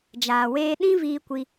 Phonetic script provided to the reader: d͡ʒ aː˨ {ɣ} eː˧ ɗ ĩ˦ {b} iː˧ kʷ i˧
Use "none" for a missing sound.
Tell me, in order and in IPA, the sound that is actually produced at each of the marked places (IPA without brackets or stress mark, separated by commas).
w, v